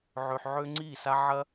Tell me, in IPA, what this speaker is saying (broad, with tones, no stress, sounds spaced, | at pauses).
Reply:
ʕ ø˨ ħ ʕ ø˧ ŋ͡ǀ i˦˨ s a˦ ʕ ɐ˦